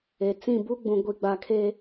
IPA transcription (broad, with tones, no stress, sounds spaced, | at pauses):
e˨ t͡s ĩ˦˨ b u˦ ɡ͡b ũ˨ ɡʷ i˨ ɡ͡b a˨ kʰ e˦